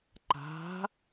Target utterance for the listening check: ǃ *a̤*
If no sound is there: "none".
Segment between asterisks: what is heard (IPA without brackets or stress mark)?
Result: a̤